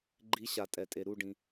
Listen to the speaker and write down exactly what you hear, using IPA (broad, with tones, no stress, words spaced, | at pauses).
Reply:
ɡ͡ǃi˨˦ɕa˩ tʼɛ˩tʼe˩ ɾu˥˩ɖĩ˩